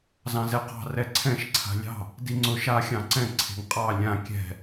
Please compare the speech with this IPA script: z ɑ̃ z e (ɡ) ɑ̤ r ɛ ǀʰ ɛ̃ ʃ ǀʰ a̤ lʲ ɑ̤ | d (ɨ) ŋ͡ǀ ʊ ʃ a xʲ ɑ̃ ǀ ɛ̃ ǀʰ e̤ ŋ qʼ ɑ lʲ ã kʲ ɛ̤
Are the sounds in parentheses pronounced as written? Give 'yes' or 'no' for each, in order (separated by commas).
no, no